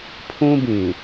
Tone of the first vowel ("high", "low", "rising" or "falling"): high